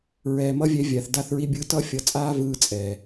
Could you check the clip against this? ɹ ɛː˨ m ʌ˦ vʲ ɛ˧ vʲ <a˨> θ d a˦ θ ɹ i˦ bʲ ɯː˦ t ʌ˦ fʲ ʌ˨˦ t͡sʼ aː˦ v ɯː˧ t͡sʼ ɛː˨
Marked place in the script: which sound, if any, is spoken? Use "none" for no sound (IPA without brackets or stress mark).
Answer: a˨